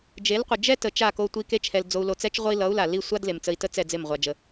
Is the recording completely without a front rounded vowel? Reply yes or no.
yes